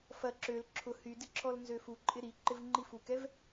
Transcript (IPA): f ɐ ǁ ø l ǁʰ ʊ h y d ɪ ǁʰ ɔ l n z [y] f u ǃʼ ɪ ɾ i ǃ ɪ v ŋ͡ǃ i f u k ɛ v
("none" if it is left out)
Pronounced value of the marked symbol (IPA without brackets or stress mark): ø